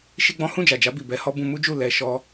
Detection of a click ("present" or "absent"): absent